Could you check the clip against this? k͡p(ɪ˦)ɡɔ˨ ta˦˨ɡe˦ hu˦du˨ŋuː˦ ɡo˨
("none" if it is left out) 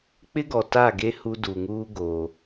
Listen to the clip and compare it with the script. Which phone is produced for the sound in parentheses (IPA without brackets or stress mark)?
ɪ˦